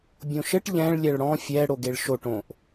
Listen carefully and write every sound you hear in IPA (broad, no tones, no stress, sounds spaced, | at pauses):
bʲ õ ʃ ɘ ʈ ʎ ɛ̃ ɭ lʲ ɛ ɭ ɽ ɔ̃ fʲ ɛ ɽ o ɡ e ɭ ʃ o ʈ õ ʔ